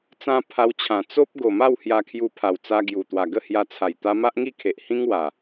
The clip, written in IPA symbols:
t͡sã˧ pʰa˧wt͡ɕʰã˨˩ t͡so˦p̚ ɡo˨˩ma˥˧w hja˧kʰju˧pʰa˨˩wt͡sa˧ ɡju˨˩t̪wa˨˩ ɡə˥˧hja˧t͡sʰa˨˩j t̪a˧ ma˦ʔŋi˥˧kʰe˨ʔhĩ˦ŋ wa˨˩

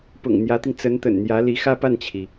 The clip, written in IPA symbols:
pʊ̰˨˩ŋ n̪jä˧˥t̪i˧ŋ t͡sə˧˥nt̪ə̰˨˩nn̪jä˧˥ li˧˥xä˥pa˥˩nt͡ɕʰi˩

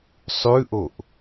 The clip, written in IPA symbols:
sˤʉʔoʔ

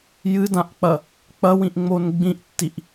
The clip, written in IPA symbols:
jɨdãʔk͡pɐ | k͡pɐwĩʔŋ͡mon ɡ͡bĩʔtːiʔ

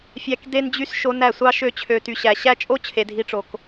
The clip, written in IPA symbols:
fʲæ˧k de˧nd͡ʑy˧s ʃo˧næ˦˨sʷɑ˦ ʃø˧t͡ɕʰø˨ ty˨ɕæ˨ɕæ˦t͡ʃʼo˦ t͡ɕʰe˨dʱi˧ʈ͡ʂo˨k

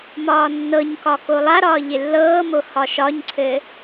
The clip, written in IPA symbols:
mɒːnːɤɲkɒ kolˠaɾɒː ʎɪlːɤːmo hɒʃɒɲǀʰɘ

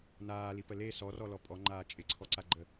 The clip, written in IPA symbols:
naːlipə le sɔrɔlɔ pʼɔŋ͡ǃaː t͡ʃʼɪǀʰɔǀaɡ͡ǃə

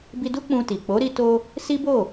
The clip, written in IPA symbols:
bi˧du˦ k͡pũ˧ti˨ k͡po˨˦ɾi˧to˧ | si˦bo˦˨

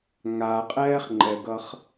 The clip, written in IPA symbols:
ŋaqʼɛːχŋ͡ǃɛɡʌχ

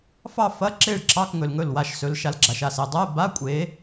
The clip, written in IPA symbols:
fɑ˥˧ fɐ˧˥˧ǁe˥˩ɭǁɑ˧˥˧k ŋɵ˨lŋɵ˥˩lwa˥˩ʃsɵ˨˦l ʃa˨˦lɡ͡ǁa˨ʃa˥˩se˨ dˤɛ˧˥˧ba˧˥˧kʷʼe˨˦

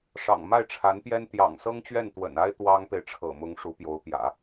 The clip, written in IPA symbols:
ʂɑ̰˨˩ŋ ma˥˩ɪ̯ʈ͡ʂʰa˧˥npjɛ˥n t̪jɑ̰˨˩ŋsɤ˥ŋt͡ɕɥɛ˥˩n t̪wə̰˨˩na˥ɪ̯ t̪wɑ˥ŋpe˨ɪ̯ ʈ͡ʂʰɤ̰˨˩mʊ˧˥ŋ ʂu˧˥pjo˧˥ʊ̯pjä̰˨˩˦

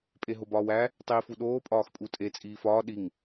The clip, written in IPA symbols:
pʼeɦobɒːwæ | tˤiːfuɗoː pʼɒːxpʼutʼe t͡sʼiːfɒː ɗiŋ

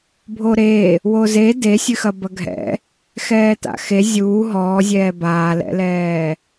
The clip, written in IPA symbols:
bʱoɾe | woze desʲɨxɐ bɐɡʱɛ̰ | xɛːta̰xe zʲuː ɦɔːzʲɛː baːlɛ̰lɛː

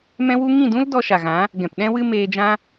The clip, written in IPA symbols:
mɛ̃˦wu˦ ŋĩ˦˨dũ˦l dɔ˧ʃa˨ɣã˨˦ | ɡɛ̃˨pɗɛ̃˦wɨ˦ meː˧d͡ʒã˦

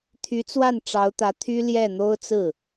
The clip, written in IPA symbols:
t̪ʰy˧˥t͡swa˥˩n ʈ͡ʂɑ˧˥ʊ̯t̪ä˧˥ t̪ʰy˥ljɛ˥˩ n̪o˥ʊ̯t͡sɹ̩˥˩

